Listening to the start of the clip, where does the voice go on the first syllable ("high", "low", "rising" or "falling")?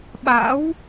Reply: rising